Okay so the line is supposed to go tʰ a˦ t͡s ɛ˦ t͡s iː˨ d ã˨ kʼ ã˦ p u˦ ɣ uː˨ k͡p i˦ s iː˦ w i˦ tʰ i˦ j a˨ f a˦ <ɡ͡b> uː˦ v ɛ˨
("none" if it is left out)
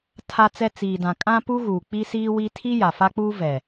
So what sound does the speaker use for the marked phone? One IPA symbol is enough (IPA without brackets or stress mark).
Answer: k͡p